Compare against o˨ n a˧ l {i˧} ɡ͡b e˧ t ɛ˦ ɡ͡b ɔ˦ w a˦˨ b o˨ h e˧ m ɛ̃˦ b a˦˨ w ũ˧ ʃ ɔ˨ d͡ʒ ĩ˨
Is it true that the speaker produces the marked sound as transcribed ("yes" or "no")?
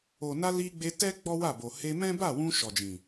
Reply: yes